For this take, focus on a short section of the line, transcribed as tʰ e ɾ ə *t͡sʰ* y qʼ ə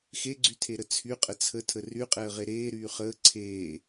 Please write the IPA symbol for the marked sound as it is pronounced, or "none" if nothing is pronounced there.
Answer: t͡sʰ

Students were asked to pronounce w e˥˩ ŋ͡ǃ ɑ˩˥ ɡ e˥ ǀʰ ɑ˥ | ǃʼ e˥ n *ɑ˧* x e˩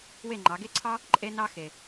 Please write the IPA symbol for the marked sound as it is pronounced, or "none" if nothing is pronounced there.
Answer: ɑ˥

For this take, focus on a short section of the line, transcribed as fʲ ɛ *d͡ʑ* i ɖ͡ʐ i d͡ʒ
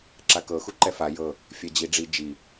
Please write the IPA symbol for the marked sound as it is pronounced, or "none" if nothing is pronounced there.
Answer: d͡ʑ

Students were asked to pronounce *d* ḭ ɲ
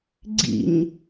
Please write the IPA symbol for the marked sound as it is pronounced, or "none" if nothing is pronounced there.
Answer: ɡ͡ǀ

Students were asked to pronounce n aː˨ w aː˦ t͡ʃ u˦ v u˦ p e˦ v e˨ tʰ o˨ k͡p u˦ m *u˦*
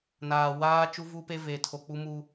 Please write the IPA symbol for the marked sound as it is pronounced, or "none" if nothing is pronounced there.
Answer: u˦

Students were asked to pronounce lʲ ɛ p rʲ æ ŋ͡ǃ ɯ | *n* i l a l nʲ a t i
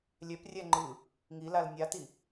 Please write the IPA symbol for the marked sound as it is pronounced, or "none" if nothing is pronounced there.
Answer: ŋ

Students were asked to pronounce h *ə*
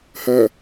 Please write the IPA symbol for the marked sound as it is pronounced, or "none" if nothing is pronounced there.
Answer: ɐ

